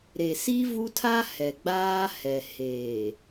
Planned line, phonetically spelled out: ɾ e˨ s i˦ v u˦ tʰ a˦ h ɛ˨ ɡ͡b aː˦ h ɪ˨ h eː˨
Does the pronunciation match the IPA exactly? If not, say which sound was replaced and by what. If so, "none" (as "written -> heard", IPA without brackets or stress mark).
ɪ˨ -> ɛ˨